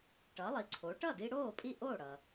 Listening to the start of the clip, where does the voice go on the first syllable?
rising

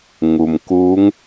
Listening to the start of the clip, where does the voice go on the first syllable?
low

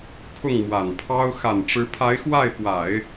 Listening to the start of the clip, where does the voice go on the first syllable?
falling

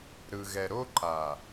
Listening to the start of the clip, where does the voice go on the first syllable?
low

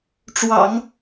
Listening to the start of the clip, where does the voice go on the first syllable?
low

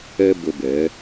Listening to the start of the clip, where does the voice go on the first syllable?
high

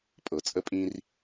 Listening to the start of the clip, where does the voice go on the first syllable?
low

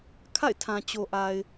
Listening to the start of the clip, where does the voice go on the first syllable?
falling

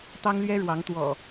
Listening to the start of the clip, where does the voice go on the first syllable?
high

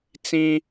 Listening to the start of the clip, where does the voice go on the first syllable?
high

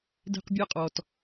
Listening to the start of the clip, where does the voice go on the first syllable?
high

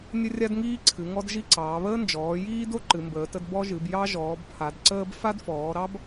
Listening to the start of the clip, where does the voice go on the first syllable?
high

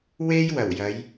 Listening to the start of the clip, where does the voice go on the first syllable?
high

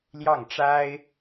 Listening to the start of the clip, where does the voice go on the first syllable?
falling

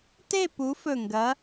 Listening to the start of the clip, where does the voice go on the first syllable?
falling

